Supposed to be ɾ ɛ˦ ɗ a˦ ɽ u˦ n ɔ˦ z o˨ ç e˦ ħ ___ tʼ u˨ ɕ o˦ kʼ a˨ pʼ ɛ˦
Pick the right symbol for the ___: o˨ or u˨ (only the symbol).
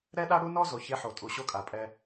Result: o˨